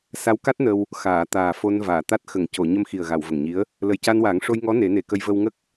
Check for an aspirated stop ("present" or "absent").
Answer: absent